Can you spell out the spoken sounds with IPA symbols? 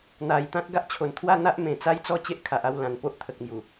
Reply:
n̪a˨˩jt̪ã˦t̚ ɡa˦ʔt͡ɕʰo˨˩nt̪ʰwa˥˧ n̪a˦ʔ mẽ˨˩t͡sa˦jt͡sɔ˦ t͡ɕe˦ʔkʰa˨ʔa˥˧w lã˨˩n po˦ʔt̪ʰə˨k̚mju˨˩

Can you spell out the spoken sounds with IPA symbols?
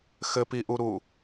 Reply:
xɘpiʔuɾu

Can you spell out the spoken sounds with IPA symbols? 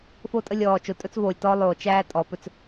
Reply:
fo˦tʼə˦lʲɔː˨ t͡ʃo˨tʼɵ˦t͡svoː˨lʲtɔː˦ lˠoː˨t͡ʃæː˦ tʼɔ˨˦pɵ˦t͡s

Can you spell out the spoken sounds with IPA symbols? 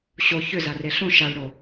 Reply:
ɕo çʏzare ɬõ ʃaɭɽo

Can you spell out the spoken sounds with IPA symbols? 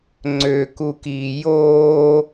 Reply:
ŋ͡ǀøkukiː joː

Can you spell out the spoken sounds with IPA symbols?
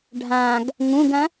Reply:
ɖʱãɡ | ŋũɡɐ̃

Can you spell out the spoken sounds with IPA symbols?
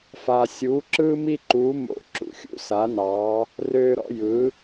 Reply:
fa˩sʲuː˩˧ǁɯː˧mi˧ ǃuː˩˧mo̰˩˧ ǁṵ˩xʲṵ˧˥sa˩˧nɑː˩˧ | røː˧ɾɔ̰˧ jɯ˩˧

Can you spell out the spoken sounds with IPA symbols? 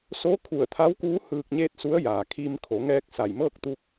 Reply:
so˧˥kʰu˧˩ə̯t̪ʰa˧˥wkuː˧˥ hɯː˧k̚ɲeː˥˨t̚su˧˥ə̯ jaː˩kʰi˧m kʰo˩˧ŋɛː˧k̚ sa˧˩j mɤː˥˨k̚t̪u˧k̚

